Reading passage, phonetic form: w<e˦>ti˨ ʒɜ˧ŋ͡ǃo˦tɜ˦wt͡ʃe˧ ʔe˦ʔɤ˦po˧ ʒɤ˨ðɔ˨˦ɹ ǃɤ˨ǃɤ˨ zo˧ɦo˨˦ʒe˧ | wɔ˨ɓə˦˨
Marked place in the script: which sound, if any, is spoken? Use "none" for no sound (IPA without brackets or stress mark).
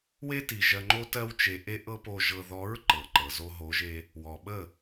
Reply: e˦